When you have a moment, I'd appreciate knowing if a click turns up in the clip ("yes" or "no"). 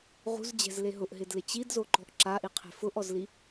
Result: yes